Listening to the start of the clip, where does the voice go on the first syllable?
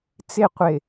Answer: falling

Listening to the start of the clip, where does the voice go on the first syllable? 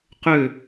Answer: falling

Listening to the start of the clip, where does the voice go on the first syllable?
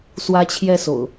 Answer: high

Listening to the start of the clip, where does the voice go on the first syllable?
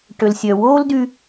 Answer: low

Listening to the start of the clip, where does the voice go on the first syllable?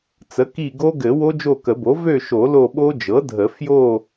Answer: rising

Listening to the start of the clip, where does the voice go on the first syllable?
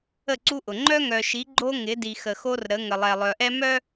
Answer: falling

